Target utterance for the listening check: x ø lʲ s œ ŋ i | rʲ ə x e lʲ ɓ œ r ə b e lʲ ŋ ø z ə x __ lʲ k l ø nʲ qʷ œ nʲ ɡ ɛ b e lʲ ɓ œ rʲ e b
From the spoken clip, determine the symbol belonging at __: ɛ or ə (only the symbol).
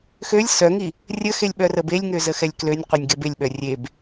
ɛ